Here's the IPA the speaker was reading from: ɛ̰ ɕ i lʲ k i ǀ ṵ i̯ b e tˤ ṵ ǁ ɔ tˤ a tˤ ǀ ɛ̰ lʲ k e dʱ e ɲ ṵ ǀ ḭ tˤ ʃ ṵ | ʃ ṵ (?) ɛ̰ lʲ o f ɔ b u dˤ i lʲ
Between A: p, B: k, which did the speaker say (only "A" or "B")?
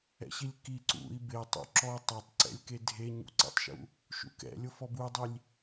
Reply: B